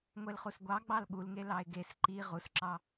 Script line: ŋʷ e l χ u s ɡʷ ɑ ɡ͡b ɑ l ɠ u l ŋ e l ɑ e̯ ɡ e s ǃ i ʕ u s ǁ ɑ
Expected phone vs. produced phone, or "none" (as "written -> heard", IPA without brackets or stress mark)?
ʕ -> ʁ